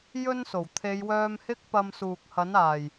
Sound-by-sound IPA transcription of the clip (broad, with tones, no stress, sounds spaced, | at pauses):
j ɵ˧ n s o˨˩ w t̪ʰ e˨˧ j w œː˧ m h ɪ˥ k̚ p ɐ˧ m s uː˨ k̚ h ɐ˨˥ n aː˨˩ j